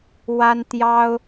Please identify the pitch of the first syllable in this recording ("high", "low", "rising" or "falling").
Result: high